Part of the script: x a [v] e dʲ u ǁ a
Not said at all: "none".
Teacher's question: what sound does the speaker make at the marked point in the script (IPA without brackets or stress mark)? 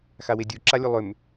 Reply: w